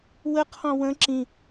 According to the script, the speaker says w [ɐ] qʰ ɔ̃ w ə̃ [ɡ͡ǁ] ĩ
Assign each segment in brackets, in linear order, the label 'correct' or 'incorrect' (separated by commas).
incorrect, incorrect